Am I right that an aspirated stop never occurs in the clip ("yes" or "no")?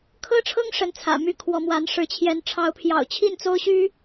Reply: no